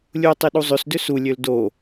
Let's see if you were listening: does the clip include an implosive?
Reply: yes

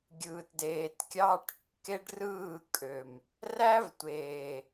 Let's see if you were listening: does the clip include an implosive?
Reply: no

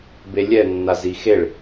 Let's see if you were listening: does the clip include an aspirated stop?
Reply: no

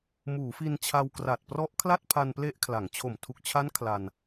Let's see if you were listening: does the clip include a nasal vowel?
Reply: no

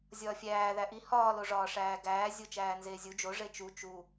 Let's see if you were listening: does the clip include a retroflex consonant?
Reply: yes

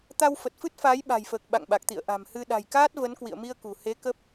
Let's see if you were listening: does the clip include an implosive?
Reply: yes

